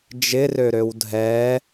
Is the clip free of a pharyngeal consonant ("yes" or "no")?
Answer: yes